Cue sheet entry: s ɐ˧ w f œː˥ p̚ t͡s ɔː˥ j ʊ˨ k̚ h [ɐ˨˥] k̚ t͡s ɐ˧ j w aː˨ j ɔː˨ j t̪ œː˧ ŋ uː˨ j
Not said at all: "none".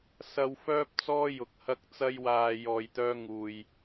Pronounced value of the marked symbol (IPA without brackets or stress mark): ɐ˧